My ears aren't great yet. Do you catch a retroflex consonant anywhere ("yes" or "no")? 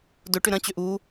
yes